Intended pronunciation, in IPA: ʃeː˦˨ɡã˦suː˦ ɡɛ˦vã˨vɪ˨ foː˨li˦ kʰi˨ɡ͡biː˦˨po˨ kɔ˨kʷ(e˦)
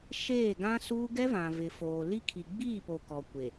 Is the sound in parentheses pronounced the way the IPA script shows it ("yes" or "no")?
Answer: no